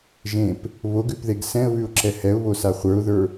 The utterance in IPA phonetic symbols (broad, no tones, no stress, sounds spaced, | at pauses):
ʒ ẽ p | β o ɡ ʉ p ð e ɡ s ɛ̃ ə̯ β ʉ ʊ̯ ǁ ɛ h ɛ ʊ̯ β o s a χʷ ə˞ ʊ̯ ð ə˞